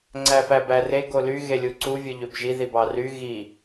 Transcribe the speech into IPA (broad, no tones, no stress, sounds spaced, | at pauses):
ŋ͡ǀ æ f æ b æ r e ɡ o l y ɣ e lʲ u ǀ u vʲ ɯ ʎ ø b ʒ i ð i b ɑ r y ɣ i